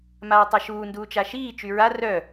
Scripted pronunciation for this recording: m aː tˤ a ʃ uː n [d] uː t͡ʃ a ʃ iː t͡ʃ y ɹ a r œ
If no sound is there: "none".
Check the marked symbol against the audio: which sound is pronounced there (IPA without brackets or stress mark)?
d